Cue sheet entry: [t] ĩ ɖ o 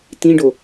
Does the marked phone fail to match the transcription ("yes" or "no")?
no